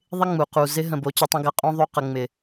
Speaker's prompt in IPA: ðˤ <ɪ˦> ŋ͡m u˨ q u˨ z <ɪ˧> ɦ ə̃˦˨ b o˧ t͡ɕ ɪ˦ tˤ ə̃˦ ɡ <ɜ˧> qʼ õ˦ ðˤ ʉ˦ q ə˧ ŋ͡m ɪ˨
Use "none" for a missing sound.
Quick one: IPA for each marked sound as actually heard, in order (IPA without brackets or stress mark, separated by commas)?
ɪ˦, ɪ˦, ɜ˧